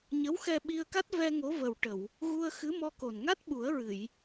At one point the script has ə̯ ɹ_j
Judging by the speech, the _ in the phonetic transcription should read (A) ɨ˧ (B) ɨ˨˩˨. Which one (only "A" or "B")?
B